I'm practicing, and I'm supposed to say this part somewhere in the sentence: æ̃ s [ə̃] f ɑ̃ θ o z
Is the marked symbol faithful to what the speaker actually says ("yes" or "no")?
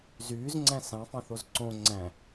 no